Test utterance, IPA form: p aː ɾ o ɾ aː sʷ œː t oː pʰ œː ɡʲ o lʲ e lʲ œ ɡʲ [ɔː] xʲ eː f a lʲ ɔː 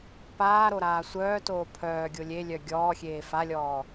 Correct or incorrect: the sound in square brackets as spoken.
correct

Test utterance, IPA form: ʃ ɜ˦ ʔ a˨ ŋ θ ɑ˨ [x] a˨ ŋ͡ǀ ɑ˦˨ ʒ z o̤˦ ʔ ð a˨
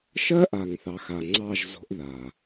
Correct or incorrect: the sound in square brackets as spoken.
correct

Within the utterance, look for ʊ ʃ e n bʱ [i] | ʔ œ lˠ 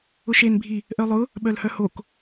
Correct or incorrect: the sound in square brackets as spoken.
correct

